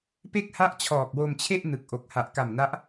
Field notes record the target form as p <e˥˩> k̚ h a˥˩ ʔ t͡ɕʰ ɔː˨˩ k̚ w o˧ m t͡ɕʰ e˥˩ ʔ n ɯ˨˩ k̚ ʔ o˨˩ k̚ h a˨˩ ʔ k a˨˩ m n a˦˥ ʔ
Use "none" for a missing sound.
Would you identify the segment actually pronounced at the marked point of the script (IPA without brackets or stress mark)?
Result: e˥˩